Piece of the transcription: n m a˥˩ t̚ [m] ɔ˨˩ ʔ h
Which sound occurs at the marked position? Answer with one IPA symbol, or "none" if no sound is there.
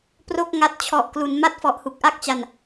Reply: f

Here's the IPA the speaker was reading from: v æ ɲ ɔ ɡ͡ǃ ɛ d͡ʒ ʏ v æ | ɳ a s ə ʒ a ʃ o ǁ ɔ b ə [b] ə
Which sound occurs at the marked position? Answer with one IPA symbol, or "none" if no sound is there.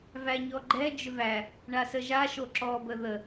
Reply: ð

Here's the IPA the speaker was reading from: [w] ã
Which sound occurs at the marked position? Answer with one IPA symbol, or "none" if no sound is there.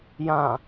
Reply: j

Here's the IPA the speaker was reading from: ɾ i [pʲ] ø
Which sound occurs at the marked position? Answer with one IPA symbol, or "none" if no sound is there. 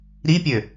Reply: pʲ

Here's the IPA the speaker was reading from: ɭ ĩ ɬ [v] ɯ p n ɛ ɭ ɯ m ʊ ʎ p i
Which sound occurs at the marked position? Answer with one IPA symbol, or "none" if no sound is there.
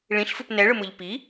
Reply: f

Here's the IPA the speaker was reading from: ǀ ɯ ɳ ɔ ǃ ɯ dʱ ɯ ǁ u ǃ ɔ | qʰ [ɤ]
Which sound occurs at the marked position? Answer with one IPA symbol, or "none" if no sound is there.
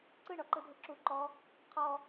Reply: ɔ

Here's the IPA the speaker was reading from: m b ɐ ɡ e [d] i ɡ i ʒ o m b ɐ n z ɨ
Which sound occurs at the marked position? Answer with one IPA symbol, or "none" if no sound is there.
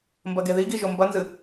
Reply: ð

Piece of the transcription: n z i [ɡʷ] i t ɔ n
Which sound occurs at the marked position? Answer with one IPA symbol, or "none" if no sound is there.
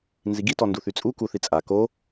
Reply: ɡ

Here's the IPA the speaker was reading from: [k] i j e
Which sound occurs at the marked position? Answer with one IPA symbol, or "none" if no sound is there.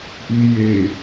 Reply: ʔ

